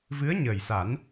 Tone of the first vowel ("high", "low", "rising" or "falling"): rising